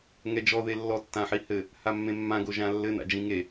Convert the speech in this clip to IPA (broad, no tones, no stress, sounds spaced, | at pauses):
ŋ ɛ d͡ʒ ɔ ð e lː ɔ tː ã ħ i h ɘ | h a mː ẽ mː ã ɡ o ʒ ã lː ɘ n a̰ d͡ʒ ĩ ŋ e